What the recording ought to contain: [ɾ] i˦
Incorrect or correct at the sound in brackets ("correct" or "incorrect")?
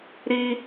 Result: correct